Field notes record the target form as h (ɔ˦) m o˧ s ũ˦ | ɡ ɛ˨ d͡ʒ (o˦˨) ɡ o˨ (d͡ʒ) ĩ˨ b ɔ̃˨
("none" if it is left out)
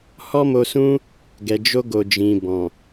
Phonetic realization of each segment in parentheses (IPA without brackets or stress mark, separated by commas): ɔ˦, o˧, d͡ʒ